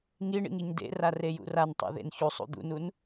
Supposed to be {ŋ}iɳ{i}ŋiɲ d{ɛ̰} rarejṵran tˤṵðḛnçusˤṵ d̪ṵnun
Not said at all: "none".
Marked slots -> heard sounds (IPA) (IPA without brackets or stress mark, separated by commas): ŋ, ḭ, ḛ